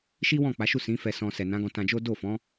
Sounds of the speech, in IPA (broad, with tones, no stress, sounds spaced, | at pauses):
ʃ i˦ w ɔ̃˦˨ k͡p a˨˦ ʃ u˦˨ s ĩ˨˦ f ɛ˧ s ɔ̃˧ s ɛ˨ n ã˨˦ ɡ ɔ̃˧ t ã˧ d͡ʒ o˦ d o˦˨ f ɔ̃˨˦